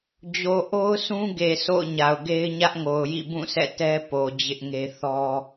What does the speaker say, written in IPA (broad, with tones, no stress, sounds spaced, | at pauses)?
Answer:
d͡ʑ o˨ ʔ o˦ ʊ̯ sʰ ũ˦ ɡ e˨ sʰ o̰˦˨ ʊ̯ ɲ a˨ ʊ̯ ɡ e˦ ɪ̯ ɲ ä˦ ʔ ŋ o˨ ʊ̯ j ḭ˦˨ b ũ˦˨ sʰ ɛ̰˦˨ t ɛ˦ p o˨ d͡ʑ ɪ˦ ʔ ŋ e˦ θ ɔ˦